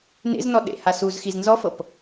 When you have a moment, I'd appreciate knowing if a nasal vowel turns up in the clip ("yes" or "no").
no